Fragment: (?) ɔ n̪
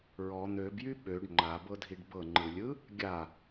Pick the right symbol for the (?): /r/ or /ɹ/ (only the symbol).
ɹ